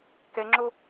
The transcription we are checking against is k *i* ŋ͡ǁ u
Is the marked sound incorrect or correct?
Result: incorrect: e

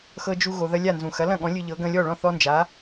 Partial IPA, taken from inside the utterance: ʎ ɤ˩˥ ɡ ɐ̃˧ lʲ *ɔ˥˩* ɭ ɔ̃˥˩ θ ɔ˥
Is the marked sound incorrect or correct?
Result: correct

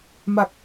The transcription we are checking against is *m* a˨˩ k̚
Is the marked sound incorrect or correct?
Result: correct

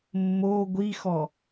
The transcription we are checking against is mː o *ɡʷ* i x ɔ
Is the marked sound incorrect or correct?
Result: correct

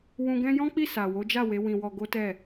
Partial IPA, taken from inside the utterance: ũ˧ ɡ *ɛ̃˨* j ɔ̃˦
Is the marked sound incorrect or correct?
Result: incorrect: ɛ̃˦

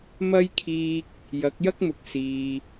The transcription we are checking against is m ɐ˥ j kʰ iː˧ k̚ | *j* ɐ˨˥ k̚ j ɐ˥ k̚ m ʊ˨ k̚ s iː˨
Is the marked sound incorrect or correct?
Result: correct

